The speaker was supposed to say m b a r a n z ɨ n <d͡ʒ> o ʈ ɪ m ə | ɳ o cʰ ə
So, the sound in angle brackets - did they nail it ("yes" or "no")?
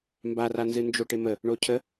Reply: yes